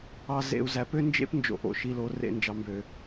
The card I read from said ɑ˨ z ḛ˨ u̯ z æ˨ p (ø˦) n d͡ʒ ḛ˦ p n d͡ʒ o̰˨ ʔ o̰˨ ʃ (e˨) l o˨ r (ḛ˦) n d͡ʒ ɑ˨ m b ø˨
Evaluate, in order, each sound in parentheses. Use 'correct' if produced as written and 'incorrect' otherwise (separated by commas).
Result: correct, incorrect, incorrect